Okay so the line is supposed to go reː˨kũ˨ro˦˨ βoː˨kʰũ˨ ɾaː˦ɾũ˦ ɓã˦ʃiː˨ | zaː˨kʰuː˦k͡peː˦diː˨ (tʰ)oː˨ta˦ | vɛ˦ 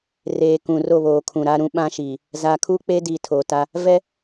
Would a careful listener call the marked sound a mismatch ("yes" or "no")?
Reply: no